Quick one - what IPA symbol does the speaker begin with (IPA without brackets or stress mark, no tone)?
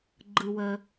ɡ͡ǃ